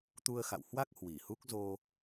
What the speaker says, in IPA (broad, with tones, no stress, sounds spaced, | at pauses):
t̪ u˧ ə̯ x a̰˧˨ w h w a˦˥ k̚ h w i˧˩ h u˦˥ k̚ z o˧